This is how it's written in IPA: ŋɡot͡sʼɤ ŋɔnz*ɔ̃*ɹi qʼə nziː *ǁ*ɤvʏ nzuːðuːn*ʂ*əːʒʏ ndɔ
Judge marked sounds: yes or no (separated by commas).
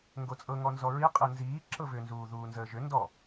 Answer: no, yes, no